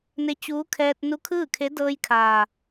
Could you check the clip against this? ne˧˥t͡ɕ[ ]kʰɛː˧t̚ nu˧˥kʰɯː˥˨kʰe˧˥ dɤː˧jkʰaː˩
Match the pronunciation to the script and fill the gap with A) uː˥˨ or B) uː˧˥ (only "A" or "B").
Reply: B